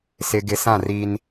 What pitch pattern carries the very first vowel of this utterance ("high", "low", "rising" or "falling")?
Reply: low